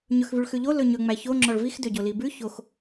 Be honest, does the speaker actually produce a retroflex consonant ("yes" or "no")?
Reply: yes